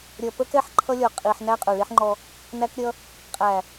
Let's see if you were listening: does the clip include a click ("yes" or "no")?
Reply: yes